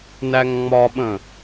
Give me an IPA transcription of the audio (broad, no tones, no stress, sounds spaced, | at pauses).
n æ ŋ ŋ͡m ɒ ɓ ə̃